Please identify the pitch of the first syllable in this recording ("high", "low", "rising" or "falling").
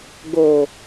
low